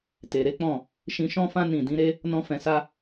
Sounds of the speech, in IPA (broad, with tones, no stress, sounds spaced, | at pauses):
t e˨ ɾ e˨˦ k͡p ɔ̃˦˨ | ʃ ĩ˧ ʃ ɔ̃˦ f ã˦ n ĩ˦˨ d ĩ˨˦ ɾ e˦ | n ɔ̃˦ f ɛ̃˧ s a˦